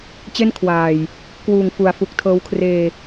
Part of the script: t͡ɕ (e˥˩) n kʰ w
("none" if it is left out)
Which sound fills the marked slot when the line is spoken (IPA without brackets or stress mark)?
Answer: e˥˩